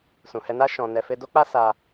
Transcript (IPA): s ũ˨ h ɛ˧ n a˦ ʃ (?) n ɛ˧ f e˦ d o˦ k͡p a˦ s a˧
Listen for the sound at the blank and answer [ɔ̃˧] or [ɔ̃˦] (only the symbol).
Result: ɔ̃˧